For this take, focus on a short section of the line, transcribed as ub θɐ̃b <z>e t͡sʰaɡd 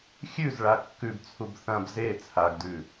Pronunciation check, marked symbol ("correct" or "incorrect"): correct